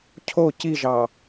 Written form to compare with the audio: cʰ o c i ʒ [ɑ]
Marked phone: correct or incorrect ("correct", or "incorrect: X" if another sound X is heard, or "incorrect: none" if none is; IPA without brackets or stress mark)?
correct